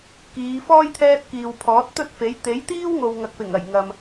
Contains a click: no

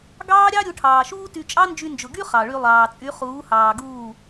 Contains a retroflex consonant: yes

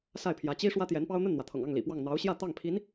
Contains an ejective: no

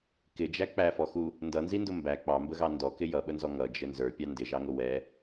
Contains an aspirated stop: no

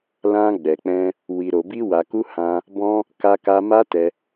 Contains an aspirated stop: no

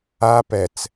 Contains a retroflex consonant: no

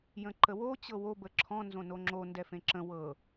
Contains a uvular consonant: no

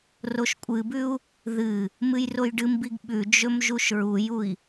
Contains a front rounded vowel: no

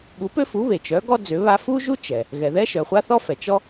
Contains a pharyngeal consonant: no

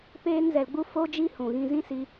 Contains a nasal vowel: yes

